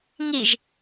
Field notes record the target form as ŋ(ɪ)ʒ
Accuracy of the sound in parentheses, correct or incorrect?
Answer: incorrect